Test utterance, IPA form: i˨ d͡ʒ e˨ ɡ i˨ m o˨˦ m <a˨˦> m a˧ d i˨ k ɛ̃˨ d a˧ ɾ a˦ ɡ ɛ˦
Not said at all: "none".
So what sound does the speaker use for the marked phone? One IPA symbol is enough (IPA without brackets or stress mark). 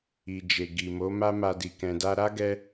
a˦